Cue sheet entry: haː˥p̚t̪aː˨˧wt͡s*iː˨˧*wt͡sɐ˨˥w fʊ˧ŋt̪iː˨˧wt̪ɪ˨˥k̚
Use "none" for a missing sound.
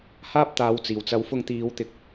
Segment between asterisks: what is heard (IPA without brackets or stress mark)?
iː˨˩